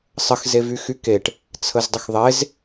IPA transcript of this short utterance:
sˤəx zevyxykeʈ | t͡sʰəzdˤəxðˤez

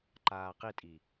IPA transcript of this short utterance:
ǃaːqitʼi

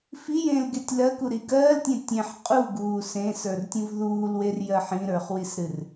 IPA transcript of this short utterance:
fijẽːlɡetʲ lɜkuɾi ɡɜːltʲẽ tʲẽħ qʼuɡuː sẽsə˞rtʲũv ðuːlwerjɜħ ĩɾə˞χwisɾɨr

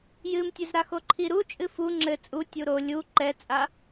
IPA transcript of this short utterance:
jɨmtʲɨzɾaxo ǃʰiɾu t͡ʃʼɨfu ŋ͡ǁɘ t͡sʼu tʲuɾo lʲu ǃɛt͡sʼa

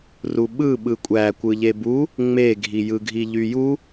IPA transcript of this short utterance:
ruɓɯ ɓɯkʷʼækʷɯ ʎebu | ŋ͡meɡʱi jɯɡʱiʎyju

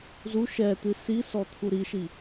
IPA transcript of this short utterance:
zu ʃɛt̪ɨ sisɔ t̪ʰuɾiʃi

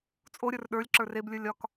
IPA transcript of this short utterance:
t͡sʼoɾʲə˞r ɗə˞lʲ ǁə˞reblʲə˞lʲ ɒk

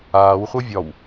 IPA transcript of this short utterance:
aːwχʷɤ vʲɒw

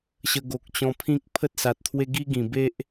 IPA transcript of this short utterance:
ɕə˧ɡo˨k̚ t͡ɕɔ̃˧pʰĩ˦k̚ pʰə˦t̚sa˨t̚t̪ʰwe˦ ɡi˦ɡĩ˨˩be˦ʔ

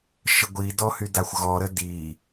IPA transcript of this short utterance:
ʃəɡʷidɔhy daxʷɣɔɾə di

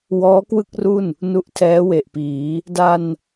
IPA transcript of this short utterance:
wɔː˦˥kwɯ˥˩k̚ru˥˩n | nu˦˥ʔtʰɛː˦˥we˨˩ʔpiː˩˦ | da˧n

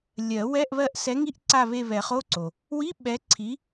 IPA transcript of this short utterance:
lʲɜ˨˩˦wɛ˧˥˧ʔ βɜ˦˨ʔsɛ˨˥ŋi˧˥˧ʔǀa˦˨ βe˦˨βɛ˨˩˦χo˧˥˧ ǀo˨ | wi˧˥˧ ɓɛ˨˥ǀʰi˨˥

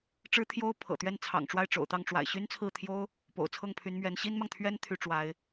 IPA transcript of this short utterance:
ʈ͡ʂɻ̩˥t̪ʰjo˥ʊ̯ pʰɤ̰˨˩t̪ɥɛ˥˩nt͡sʰɑ̰˨˩ŋʈ͡ʂwa˥˩ɪ̯ ʈ͡ʂo̰˨˩ʊ̯t̪ɑ˥˩ŋ ʈ͡ʂwa̰˨˩ɪ̯ɕy˥nt͡sʰɹ̩˥˩t̪ʰjo˥ʊ̯ | po̰˨˩ʊ̯t͡sʰɤ˥˩ŋpʰy˧˥nmɥɛ˧˥n ɕi˥nmɑ˨ŋt̪ʰɥɛ˥n t̪ʰy˥ʈ͡ʂwa˧˥ɪ̯

